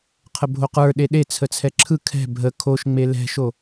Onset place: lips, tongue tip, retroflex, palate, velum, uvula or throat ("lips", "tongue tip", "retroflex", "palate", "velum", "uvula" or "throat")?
uvula